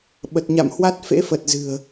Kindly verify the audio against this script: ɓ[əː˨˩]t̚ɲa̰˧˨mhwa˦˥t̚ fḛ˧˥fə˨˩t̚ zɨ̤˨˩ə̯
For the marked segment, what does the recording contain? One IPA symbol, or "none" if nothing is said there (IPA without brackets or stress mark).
ə˨˩